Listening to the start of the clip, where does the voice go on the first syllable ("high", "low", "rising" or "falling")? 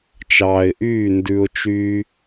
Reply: low